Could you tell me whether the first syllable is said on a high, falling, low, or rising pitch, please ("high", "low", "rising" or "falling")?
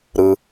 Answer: low